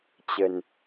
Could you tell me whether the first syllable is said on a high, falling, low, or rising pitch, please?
low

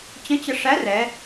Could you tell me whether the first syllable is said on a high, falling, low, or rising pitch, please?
rising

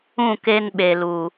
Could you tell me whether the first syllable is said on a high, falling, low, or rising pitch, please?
falling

